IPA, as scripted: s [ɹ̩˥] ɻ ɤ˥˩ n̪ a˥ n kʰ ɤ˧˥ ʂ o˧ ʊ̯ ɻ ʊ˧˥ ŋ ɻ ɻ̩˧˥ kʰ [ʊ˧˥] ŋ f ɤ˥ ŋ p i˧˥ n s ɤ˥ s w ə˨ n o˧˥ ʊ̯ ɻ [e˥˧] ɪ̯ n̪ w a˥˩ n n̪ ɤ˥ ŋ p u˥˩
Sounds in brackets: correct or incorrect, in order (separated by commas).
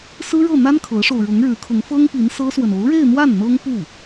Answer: correct, correct, correct